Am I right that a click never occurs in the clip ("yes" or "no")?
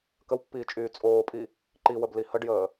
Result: no